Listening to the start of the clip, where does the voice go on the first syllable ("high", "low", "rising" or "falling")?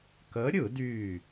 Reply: rising